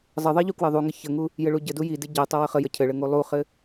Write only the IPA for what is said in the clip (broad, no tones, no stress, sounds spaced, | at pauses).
zˤ ə ðˤ i ʎ u k w ɘ ðˤ u ŋ ɘ ç ə ŋ u | j ɘ ɭ u ɟ ɘ d u j i d i ɟ ɘ tˤ ə w ə χ ə j ə cʰ ɘ ɭ ɘ ŋ u lˠ u χ ɘ